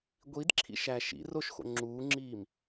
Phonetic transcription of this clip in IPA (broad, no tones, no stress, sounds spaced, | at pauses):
ɡʷ i d ǁʰ ḭ ʃ æ ʃ ḭ r o ʃ x o̰ ŋ͡ǁ uː ŋ͡ǁ iː m